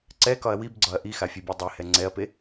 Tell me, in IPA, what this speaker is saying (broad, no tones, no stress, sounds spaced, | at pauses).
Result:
ǀ ɛ k ɒ ɐ̯ w i b ɡ͡ǀ ɒ ɐ̯ ʔ i x a fʲ ɛ bʲ e dˤ e h ɛ ŋ͡ǀ ɛ ɐ̯ p e